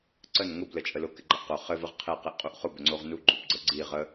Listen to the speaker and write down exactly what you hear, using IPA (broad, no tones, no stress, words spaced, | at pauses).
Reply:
ǀən ŋʊb lət͡ʃʼəlʊ kɪɡ͡ǃəʔqʊ χɘ vəʁqʰe qeʔqʼuʔχʊ bɘŋ͡ǀoʁnu ɡ͡ǃubɡ͡ǀəɡ͡ǀiʁ ə